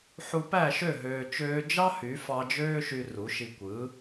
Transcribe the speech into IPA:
ħ u˧ p æ˦˨ ʃ ø˦˨ ɦ øː˧ t͡ʃ øː˦ d͡ʒ ɑ˦ h y˨˦ f ɑ˧ d͡ʒ øː˦ ʃ y˧ r u˨˦ ʃ i˧ kʷ ɯ˨˦

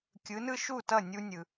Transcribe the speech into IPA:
kʲ ɯ˩˥ n ɯ˥ ʃ u˥˩ t ʌ˥˩ nʲ u˧ nʲ ɯ˩

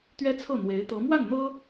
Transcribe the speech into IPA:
t̪ ɥ ɛ˥ t͡sʰ ɤ˥˩ n̪ w e˧˥ ɪ̯ t̪ ɤ˧˥ m w a˥˩ n n̪ ɤ˥

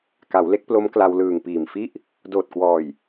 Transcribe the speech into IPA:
k a˩˦ w l e˦˥ k̚ p l o˦˥ m k l a˧ w l ɯː˨˩ ŋ p iː˨˩ m f i˥˩ ʔ | d oː˨˩ t̚ k w ɔː˨˩ j

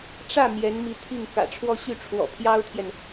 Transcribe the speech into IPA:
ʈ͡ʂ ä˥˩ m j ɛ˧˥ n m i˧˥ t̪ʰ i˥˩ ŋ k ä̰˨˩ ʈ͡ʂʰ w ɔ˥˧ ɕ y˥˩ ʈ͡ʂʰ w ɔ̰˨˩ pʰ j ɑ˥ ʊ̯ t̪ʰ j ɛ˨ n

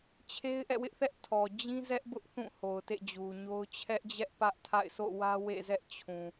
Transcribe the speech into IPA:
t͡ɕʰ e˦ ɪ̯ ʔ ɛ̰˦˨ w ɪ˦ ʔ θ ɛ˦ ʔ tʰ ɔ˨ d͡ʑ ĩ˦ z ɛ˦ ʔ b ʊ˦ ʔ θ ũ˦˨ h o˨ ʊ̯ t ḛ˦˨ d͡ʑ u˨ ɲ o˦ ʊ̯ t͡ɕʰ ɛ˦ ʔ d͡ʑ ɛ˦ ʔ p ä˦ ʔ tʰ a̰˦˨ ɪ̯ s o̰˦˨ w ä˦ w ḛ˦˨ z ɛ˦ ʔ t͡ɕʰ ũ˨

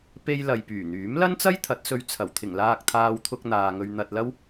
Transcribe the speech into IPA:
p e˧ j l ɐ˨ j p yː˨˩ n̪ yː˨˥ m l ɐ˥ n t͡s ɐ˥ j t̪ʰ ɐ˨˥ t̚ s ɵ˧ ɥ t͡sʰ ɐ˨˩ w t̪ʰ ɪ˨˩ ŋ l aː˧ k̚ t̪ʰ aː˧ w t̪ʰ ʊ˧ k̚ n̪ aː˨ ŋ ɵ˧ ɥ n̪ ɐ˧ t̚ l ɐ˥ w

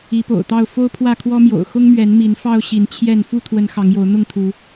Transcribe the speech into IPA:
i˨˦ p o̰˨˩ ʊ̯ t̪ ɑ˥˨ ʊ̯ f o˦ ʊ̯ pʰ w ä˥˨ kʰ w ɔ˦ m j o̰˨˩ ʊ̯ x ʊ˦ ŋ m ɥ ɛ˨˦ n m i˨˦ n f ɑ˦ ʊ̯ ɕ i˨˦ n t͡ɕʰ j ɛ˥˨ n f u˥˨ t̪ʰ w ə˨˦ n x ɑ˨˦ ŋ j o˨˦ ʊ̯ n̪ ʊ˥˨ ŋ t̪ʰ u˨˦

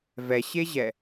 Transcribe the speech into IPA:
v ɛ ɕ e ʑ ɛ

